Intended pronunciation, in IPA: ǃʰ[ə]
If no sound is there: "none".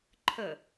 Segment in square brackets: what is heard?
ə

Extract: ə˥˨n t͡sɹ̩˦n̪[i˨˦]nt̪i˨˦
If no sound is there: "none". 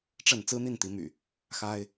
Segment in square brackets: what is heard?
i˥˨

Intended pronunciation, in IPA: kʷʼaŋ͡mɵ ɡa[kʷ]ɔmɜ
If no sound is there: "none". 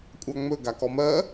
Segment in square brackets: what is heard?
k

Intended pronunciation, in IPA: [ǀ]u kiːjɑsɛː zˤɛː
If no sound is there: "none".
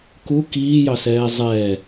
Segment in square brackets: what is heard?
k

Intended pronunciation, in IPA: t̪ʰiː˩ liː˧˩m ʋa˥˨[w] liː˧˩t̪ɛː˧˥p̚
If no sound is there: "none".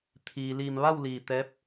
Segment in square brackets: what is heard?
w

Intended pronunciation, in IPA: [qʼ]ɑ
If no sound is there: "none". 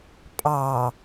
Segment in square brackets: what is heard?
pʼ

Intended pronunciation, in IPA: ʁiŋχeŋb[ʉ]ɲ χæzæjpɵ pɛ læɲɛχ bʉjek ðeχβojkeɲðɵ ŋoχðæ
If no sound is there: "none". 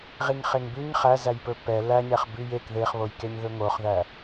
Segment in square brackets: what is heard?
ʉ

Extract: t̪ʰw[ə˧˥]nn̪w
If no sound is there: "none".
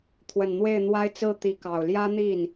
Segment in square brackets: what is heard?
ə˨˩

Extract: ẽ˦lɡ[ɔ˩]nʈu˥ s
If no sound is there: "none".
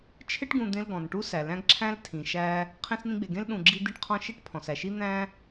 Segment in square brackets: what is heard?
ɔ̃˩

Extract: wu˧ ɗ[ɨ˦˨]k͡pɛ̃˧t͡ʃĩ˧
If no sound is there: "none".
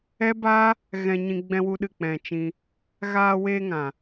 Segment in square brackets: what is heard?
ɨ˦˨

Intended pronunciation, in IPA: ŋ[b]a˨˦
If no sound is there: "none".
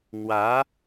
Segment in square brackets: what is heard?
w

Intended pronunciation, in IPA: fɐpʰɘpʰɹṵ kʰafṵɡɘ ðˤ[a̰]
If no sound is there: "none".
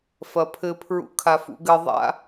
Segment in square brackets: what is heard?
a̰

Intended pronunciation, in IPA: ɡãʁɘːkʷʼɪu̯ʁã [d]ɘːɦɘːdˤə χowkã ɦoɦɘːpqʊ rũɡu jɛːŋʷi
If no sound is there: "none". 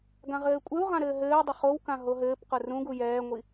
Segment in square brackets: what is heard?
ɾ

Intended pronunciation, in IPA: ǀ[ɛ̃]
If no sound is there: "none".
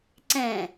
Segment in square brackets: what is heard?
ɛ̃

